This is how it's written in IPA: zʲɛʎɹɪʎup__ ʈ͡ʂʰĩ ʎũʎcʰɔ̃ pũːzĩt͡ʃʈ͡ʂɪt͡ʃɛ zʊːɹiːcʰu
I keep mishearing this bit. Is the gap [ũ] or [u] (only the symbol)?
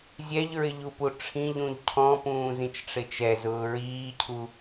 u